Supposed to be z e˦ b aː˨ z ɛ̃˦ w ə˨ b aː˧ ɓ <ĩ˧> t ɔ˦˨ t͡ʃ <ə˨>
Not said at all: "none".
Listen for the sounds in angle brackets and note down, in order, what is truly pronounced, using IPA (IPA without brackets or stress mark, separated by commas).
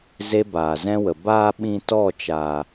ĩ˧, a˨